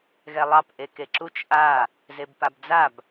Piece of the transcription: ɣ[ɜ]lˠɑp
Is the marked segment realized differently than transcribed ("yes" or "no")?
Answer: yes